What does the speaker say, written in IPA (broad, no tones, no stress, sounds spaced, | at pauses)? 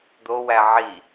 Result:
d̪ o w æ ʕ i